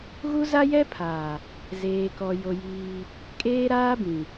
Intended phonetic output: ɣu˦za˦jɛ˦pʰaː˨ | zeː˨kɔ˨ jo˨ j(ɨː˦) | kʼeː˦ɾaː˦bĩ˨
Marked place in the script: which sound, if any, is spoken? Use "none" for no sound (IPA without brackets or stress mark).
iː˦